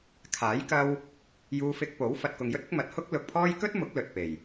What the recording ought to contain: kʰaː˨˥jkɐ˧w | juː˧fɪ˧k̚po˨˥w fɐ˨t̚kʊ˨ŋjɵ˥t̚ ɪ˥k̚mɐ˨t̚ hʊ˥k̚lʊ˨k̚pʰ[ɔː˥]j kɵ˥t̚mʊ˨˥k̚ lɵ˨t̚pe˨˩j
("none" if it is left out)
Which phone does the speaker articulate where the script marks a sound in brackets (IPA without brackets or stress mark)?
ɔː˥